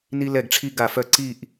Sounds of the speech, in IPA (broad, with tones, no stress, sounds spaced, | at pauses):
n i˧ l ɛ˧˩ ɡ ʈ͡ʂʰ i˧ ɡ a˧˩ f œ˧ ǀ i˥˧ ʔ